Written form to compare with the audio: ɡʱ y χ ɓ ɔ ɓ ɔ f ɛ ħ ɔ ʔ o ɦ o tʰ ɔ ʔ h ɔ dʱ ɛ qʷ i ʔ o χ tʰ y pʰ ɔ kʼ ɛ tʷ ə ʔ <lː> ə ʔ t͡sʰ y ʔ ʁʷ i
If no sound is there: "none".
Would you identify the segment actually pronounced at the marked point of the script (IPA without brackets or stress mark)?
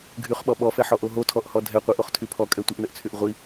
n